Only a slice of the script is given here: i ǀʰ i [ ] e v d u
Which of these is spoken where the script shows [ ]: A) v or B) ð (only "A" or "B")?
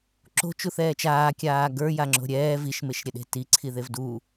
B